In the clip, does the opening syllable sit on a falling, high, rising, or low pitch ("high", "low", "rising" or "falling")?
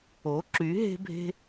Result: rising